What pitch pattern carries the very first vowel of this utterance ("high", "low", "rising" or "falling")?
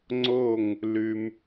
falling